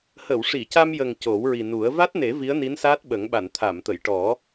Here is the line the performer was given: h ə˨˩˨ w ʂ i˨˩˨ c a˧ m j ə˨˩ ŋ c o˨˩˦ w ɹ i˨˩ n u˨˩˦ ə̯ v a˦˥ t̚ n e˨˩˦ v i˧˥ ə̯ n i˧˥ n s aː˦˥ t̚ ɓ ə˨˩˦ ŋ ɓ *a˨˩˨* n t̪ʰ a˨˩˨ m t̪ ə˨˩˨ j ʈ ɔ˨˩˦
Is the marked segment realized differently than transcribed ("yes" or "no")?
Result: no